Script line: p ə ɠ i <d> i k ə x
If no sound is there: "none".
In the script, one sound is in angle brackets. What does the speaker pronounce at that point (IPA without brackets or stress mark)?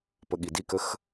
d